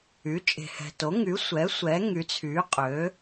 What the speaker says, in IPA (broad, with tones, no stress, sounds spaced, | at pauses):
y˩˥ t͡ʃʼ e̤˨ h ɛ̤˨ t o˩˥ ŋ y˩˥ sʷ ɛ˩˥ sʷ ɛ˩˥ ŋ y˩˥ t͡sʰ y˩˥ qʼ ø˩˥